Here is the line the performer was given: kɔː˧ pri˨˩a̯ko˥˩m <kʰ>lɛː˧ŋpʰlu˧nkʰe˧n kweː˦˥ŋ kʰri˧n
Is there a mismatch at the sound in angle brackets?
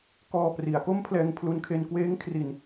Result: yes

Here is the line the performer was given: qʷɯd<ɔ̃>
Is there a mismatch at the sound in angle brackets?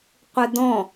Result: no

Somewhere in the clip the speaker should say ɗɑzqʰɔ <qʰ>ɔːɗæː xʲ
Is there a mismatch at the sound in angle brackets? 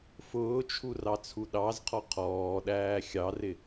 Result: no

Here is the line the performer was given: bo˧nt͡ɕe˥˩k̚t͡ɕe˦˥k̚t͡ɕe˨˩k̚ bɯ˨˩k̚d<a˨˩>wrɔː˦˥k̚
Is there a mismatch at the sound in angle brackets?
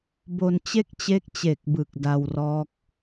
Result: yes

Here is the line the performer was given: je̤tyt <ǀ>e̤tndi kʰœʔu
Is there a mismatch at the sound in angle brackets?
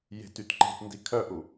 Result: yes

